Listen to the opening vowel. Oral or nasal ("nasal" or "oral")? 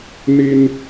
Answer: oral